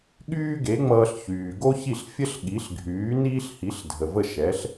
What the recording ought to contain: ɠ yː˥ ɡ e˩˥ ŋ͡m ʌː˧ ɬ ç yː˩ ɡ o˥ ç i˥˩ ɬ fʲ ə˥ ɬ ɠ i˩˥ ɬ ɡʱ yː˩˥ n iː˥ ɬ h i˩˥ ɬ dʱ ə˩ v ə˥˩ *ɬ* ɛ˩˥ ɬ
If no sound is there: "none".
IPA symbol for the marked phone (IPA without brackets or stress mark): ʃ